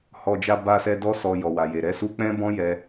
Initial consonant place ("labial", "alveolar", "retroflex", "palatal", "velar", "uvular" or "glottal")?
glottal